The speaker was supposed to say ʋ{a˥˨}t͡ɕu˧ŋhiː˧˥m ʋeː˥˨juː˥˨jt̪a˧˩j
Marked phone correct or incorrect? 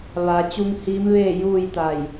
incorrect: a˩˧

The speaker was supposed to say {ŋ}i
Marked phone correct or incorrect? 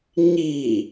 incorrect: ɲ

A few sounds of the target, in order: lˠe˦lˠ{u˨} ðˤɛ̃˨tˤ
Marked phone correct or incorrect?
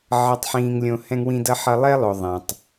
incorrect: o˨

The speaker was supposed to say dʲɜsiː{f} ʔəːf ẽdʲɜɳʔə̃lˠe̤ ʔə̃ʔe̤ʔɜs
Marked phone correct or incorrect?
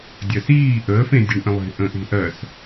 incorrect: none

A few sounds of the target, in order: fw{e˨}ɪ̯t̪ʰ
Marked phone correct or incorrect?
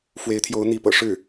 incorrect: e˧˥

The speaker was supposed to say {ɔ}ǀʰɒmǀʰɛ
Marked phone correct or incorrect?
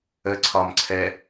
incorrect: ə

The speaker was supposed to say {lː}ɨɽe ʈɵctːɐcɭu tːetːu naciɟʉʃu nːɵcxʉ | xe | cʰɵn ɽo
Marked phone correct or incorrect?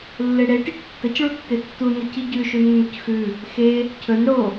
correct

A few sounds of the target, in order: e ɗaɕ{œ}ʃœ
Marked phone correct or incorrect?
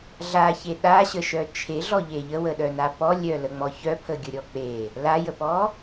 incorrect: ə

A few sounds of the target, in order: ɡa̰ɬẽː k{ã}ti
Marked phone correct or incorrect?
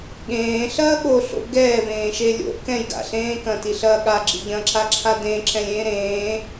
incorrect: ɐ̃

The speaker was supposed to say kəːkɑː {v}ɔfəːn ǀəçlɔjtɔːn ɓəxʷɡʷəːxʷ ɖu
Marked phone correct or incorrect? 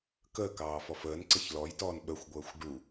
incorrect: f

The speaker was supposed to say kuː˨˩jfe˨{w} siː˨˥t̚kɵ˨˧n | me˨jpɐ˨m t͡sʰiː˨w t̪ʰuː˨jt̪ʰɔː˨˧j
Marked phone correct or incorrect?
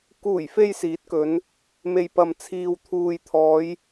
incorrect: j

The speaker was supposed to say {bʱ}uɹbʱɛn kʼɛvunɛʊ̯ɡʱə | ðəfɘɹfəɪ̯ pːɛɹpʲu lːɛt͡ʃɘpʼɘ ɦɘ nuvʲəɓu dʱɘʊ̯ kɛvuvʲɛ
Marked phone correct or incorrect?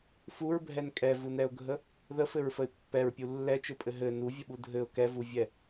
incorrect: f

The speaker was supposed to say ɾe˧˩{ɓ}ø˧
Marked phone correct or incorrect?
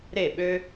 correct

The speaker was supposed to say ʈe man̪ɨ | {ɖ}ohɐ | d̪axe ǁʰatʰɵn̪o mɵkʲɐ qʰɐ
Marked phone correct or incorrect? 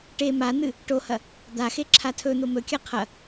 incorrect: ʈ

